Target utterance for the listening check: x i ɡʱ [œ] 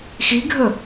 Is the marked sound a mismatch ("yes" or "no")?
yes